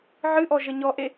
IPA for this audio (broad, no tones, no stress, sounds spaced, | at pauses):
ʕ ɨ ʔ ɔ ʒ ə ɲ ɔ ʔ e